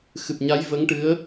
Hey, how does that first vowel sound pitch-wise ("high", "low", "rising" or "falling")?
low